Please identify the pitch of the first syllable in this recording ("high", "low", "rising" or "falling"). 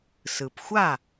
low